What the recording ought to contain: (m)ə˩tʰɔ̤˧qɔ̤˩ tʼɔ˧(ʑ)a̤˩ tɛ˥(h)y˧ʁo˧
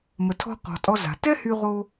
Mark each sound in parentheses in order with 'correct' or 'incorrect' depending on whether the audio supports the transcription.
correct, incorrect: z, correct

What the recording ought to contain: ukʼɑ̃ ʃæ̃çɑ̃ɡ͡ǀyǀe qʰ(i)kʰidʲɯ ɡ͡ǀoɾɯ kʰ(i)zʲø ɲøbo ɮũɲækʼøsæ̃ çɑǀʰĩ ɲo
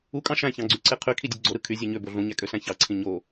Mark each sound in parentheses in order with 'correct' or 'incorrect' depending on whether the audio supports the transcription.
incorrect: y, incorrect: y

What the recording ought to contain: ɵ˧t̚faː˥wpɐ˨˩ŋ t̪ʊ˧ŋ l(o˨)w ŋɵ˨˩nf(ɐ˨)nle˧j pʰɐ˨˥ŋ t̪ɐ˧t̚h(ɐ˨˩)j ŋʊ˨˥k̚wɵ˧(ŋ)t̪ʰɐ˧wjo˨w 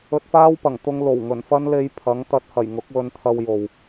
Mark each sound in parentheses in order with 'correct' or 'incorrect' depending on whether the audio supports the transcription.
incorrect: o˨˩, incorrect: ɐ˥, correct, incorrect: n

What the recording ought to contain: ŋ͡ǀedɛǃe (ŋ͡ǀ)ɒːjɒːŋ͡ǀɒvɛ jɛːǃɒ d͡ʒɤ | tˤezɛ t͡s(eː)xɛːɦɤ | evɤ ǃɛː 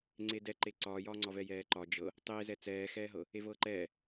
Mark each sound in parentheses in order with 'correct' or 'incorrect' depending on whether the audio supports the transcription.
incorrect: ǀ, incorrect: ɛː

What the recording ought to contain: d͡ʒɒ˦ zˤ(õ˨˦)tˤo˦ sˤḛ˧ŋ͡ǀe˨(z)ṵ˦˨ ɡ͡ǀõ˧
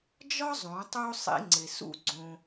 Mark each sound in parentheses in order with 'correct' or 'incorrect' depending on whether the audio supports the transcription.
correct, incorrect: s

